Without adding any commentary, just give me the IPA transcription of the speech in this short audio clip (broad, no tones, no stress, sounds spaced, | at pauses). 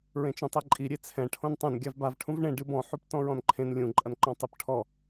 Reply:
ɹ ẽ t͡ʃ õ tˤ e ǃʼ i ɾʲ e t͡sʰ ɛ̃ ʈʰ õ n tˤ ɛ̃ n ɡʲ a v b a v ʈʰ ũ v ɳ ẽ ɖ ɨ b ɔ̃ ħ u p t ɔ̃ ɹ ɔ̃ n ǃʰ ẽ n lʲ ũ ǃʼ ɐ n ǃ ɔ̃ tˤ ɨ p ʈʰ ɔ